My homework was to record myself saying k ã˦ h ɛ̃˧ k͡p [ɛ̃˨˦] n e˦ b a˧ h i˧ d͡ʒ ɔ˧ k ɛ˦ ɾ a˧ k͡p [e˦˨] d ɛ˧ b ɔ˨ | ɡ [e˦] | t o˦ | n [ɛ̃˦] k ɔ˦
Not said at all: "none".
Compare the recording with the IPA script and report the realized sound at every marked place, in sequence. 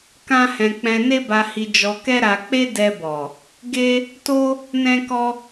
ɛ̃˧, e˦, e˦, ɛ̃˦

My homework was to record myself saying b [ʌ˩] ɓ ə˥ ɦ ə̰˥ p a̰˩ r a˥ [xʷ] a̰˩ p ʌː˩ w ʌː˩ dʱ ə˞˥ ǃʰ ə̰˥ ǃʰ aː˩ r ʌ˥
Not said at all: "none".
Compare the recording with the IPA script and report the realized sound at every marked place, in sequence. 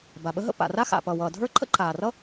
a˩, x

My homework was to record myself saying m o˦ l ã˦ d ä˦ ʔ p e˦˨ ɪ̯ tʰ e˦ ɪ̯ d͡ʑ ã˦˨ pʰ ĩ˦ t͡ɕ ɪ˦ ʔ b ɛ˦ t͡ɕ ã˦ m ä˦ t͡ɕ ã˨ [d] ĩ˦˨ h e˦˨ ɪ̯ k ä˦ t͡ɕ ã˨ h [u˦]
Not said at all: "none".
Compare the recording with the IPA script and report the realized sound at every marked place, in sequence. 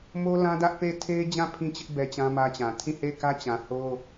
tʰ, o˦

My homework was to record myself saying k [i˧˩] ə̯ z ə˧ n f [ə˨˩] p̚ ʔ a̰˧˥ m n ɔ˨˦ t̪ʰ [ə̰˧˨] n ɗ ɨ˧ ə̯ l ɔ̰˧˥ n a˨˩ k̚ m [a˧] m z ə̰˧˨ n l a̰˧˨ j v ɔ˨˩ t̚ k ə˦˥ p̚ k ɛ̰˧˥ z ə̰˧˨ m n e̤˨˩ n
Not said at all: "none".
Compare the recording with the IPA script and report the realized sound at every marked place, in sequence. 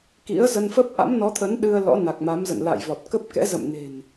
ḭ˧˥, ə˦˥, ə˨˦, a˨˦

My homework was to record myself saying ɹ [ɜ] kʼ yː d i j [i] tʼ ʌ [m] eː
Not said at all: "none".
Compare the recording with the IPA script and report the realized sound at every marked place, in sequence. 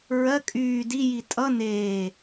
ɜ, i, n

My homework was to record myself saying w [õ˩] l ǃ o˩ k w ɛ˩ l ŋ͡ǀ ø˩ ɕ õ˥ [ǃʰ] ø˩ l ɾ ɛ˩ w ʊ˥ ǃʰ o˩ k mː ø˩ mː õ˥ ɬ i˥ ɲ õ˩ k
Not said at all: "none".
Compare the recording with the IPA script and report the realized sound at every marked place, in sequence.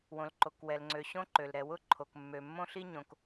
õ˩, ǃ

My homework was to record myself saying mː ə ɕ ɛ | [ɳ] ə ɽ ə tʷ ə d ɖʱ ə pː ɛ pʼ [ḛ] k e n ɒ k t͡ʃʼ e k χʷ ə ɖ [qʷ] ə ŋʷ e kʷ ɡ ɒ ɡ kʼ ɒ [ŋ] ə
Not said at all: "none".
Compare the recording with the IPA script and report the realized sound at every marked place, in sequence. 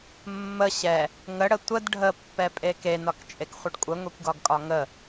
ŋ, e, kʷʼ, ŋ

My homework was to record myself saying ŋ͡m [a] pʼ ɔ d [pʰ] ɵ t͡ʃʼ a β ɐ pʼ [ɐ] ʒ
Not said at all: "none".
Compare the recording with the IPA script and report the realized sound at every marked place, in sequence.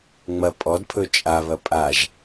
ɐ, pʰ, a

